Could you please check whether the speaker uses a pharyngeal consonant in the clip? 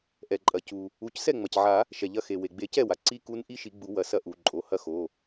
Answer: yes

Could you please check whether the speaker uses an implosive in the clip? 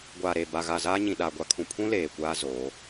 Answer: yes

